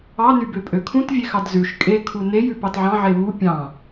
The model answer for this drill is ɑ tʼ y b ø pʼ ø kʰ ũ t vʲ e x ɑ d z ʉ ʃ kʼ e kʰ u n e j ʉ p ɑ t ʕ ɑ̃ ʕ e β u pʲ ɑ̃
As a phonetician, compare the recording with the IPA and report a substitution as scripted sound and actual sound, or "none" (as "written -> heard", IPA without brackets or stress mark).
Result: tʼ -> n